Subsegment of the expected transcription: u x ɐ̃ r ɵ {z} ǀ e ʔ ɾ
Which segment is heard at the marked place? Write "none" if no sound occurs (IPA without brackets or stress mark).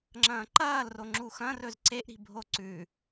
z